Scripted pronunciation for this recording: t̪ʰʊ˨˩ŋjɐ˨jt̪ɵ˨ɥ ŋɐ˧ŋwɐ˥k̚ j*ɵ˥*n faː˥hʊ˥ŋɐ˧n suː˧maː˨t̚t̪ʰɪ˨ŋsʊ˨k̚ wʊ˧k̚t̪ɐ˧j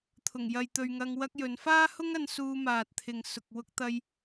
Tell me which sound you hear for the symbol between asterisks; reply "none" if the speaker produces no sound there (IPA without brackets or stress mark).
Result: ɵ˨˧